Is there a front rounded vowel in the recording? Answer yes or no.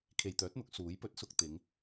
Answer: yes